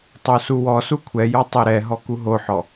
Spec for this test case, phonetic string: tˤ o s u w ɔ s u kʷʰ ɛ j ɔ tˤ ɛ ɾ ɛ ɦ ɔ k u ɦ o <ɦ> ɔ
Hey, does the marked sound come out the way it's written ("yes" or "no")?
no